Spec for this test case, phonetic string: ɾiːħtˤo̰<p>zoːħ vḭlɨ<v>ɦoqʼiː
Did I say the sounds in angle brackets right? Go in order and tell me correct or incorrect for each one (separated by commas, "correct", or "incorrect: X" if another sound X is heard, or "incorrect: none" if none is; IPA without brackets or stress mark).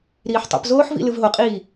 correct, correct